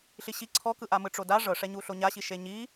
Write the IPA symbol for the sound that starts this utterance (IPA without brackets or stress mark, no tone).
ɬ